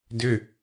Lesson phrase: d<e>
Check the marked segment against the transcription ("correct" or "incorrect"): incorrect